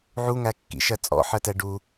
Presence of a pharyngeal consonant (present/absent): present